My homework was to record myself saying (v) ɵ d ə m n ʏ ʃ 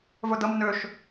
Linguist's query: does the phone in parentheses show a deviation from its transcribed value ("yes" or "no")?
no